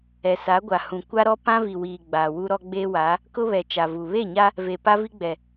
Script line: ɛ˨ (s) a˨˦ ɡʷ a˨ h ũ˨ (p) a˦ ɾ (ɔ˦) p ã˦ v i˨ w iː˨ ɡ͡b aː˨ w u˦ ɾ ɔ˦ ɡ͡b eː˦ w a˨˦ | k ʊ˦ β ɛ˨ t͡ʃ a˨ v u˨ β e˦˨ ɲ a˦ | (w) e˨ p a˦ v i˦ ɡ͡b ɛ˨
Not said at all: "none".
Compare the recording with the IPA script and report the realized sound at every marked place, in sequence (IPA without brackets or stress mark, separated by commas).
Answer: s, kʷ, ɔ˦, v